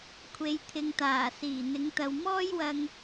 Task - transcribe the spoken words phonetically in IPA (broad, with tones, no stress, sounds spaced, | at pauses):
kʷʰ e˨˧ j t̪ʰ ɪ˨ ŋ t̪ aː˨˩ s iː˨˩ n̪ ɪ˨˥ ŋ t̪ ɐ˨ w m ɔː˥ j w ɐ˧ ŋ